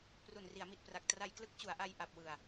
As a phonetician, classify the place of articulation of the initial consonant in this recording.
labial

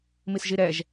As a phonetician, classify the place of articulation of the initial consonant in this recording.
labial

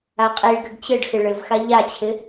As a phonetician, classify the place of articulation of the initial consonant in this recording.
uvular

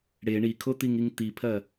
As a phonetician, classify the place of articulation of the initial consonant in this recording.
retroflex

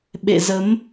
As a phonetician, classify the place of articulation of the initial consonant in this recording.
labial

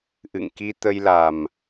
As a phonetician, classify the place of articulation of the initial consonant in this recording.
glottal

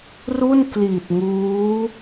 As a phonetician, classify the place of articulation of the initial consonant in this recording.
alveolar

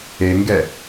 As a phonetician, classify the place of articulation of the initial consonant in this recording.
velar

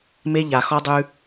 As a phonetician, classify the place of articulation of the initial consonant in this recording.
labial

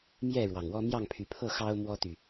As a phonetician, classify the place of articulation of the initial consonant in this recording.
labial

